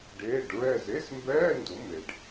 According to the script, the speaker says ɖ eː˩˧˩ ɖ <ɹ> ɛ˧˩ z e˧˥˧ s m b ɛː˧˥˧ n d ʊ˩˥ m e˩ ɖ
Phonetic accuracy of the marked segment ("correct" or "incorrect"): correct